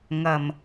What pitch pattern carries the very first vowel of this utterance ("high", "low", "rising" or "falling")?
low